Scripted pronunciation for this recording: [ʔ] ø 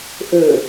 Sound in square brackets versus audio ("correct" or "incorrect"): correct